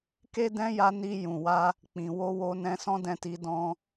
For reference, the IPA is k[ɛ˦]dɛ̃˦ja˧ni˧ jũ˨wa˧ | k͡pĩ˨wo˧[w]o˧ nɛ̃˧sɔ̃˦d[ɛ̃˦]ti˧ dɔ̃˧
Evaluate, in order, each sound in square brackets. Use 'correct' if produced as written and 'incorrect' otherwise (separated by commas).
incorrect, correct, incorrect